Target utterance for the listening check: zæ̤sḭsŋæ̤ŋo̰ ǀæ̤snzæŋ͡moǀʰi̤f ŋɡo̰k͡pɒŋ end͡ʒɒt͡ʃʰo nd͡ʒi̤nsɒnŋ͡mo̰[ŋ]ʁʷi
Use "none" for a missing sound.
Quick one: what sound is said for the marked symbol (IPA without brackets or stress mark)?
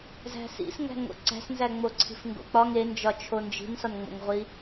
ŋ